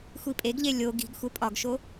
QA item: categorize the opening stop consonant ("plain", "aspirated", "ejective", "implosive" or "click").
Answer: ejective